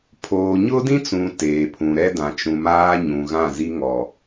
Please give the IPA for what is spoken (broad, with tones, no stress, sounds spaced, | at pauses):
pʰ oː˨ ɲ ʊ˦ d ĩ˦ t͡s ũ˨ t eː˨ pʰ ũ˨ ɾ ɛ˦ d ã˨ t͡ʃ ũ˨ m aː˦ ɲ ũ˨ ɣ ã˦˨ z i˦ ŋ ɔ˨